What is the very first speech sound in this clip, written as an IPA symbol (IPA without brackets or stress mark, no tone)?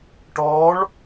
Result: ʈ